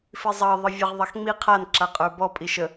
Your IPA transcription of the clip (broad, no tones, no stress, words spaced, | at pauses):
fizˤɑ ðˤəvʲəʁ ðˤaxŋ͡mi qʰan ǁaqʼə˞bɔ pʼiʃə